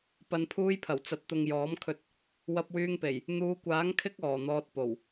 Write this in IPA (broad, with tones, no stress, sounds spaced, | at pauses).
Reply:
p ɐ˨ n pʰ uː˧ j pʰ ɐ˨˩ w t͡s ɐ˨ t̚ t̪ ʊ˨ ŋ j ɔː˨˥ m kʰ ɵ˧ t̚ | w ɐ˧ p̚ w yː˧ ŋ p e˨˩ j | n̪ uː˨˧ kʷ aː˨˥ ŋ kʰ ɪ˥ k̚ ɔː˨˩ n̪ ɔː˧ t̚ p o˨˩ w